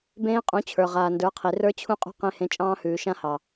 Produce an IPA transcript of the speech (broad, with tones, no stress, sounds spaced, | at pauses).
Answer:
b ẽː˦ qʼ ũ˨˦ t͡ɕʰ ə˞˨ ʁ aː˨ n d ə˞˨˦ qʰ i˨ r ə˞˦ t͡ɕʰ ũ˦ qʼ ṳ˦ q ẽ˦ h ẽ˦ t͡ʃʼ ɑ̃ː˦ h ʉː˨ ʃ ã˦ h ɑ˨